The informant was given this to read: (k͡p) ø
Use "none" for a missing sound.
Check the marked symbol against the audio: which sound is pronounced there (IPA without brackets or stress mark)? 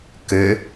k